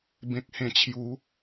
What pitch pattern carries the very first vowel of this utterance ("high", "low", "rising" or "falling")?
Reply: low